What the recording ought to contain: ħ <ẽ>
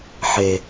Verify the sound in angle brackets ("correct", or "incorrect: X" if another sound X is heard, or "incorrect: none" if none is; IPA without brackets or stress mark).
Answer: incorrect: e